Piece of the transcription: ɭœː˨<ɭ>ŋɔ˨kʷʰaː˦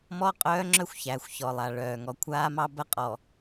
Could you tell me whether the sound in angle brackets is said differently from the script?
yes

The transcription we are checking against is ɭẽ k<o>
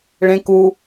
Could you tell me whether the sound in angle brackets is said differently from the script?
yes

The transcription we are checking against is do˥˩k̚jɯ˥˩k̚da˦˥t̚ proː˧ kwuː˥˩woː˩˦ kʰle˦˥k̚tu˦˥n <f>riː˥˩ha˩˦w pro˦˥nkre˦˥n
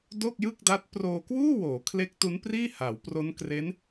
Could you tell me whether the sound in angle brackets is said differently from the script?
yes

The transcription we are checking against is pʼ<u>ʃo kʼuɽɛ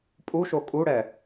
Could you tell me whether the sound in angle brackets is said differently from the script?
no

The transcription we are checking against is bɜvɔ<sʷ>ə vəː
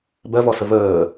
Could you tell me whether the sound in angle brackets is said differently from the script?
yes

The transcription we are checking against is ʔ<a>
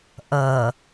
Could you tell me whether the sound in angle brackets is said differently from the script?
yes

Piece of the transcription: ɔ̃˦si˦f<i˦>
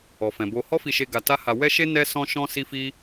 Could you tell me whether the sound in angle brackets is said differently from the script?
no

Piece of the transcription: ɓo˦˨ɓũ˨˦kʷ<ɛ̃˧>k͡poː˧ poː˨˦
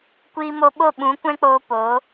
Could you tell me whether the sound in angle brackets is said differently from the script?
yes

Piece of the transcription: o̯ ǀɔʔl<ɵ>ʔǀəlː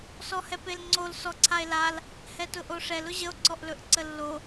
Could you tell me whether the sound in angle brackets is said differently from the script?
no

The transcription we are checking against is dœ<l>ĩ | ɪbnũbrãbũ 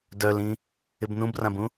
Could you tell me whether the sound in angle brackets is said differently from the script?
no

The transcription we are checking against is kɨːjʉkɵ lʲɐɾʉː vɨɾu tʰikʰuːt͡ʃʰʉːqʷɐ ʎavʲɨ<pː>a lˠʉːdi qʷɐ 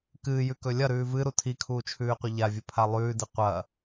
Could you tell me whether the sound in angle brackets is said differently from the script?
yes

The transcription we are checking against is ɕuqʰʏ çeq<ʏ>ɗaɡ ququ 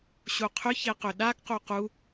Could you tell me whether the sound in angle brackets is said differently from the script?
no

